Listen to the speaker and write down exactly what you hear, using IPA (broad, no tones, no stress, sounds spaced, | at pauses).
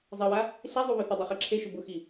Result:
zˤ ɛ w a | ɬ i zˤ u β œ θ ʏ dˤ e χ e ǁʰ e ʃ ʊ b ʊ x i